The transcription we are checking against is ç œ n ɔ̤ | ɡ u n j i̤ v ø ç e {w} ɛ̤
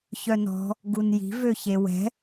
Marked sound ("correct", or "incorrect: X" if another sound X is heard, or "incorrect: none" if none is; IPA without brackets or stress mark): correct